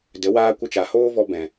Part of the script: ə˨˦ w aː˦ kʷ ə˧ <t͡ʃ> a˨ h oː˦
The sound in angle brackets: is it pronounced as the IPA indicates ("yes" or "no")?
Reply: yes